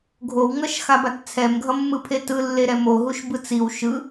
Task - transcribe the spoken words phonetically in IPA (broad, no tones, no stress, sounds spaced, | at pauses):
ɡʱ o w ŋ ʌ ʃ x a b a t t͡sʰ ɛ m ɡʱ ʌ mː ɯ pʰ e t ɯ lː e ɾ ɛ m o ɦ u ʃ b ɯ t͡s i w ʃ ɯ